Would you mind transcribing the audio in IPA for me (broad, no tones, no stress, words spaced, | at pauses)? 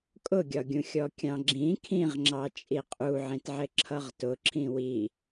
kʼʊɡʲɒɡʲũ xʲɔkʲɑ̃ɡ͡ǁĩ kʰĩʁŋ͡ǁɑ t͡ʃʼiqʼu ʕĩtʕɪǁʰʌʁtʊ ǁʰĩwi